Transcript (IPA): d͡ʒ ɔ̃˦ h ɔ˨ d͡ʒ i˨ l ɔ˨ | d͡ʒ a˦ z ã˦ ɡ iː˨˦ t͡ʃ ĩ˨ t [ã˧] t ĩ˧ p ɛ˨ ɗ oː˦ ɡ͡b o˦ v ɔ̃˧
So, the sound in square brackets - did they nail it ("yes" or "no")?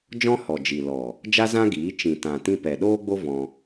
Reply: no